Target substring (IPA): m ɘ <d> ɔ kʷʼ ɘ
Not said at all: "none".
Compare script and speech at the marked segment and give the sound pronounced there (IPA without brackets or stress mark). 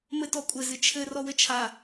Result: t